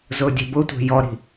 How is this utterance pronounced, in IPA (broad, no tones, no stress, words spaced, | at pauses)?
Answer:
zʊːdʲe̤bʊtʷe̤ jɔɾi̤